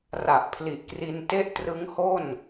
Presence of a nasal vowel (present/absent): absent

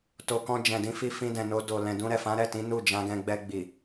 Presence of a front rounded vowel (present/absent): absent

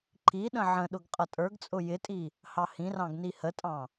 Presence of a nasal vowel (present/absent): present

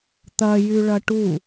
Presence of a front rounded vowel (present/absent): present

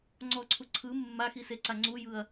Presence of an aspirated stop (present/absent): present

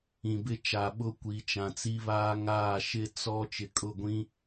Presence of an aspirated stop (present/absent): absent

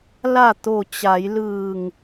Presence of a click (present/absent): absent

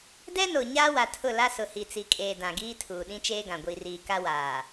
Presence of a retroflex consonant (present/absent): absent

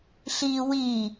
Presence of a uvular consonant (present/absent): absent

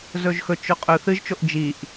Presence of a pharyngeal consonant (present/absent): absent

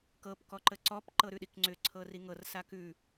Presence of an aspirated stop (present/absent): present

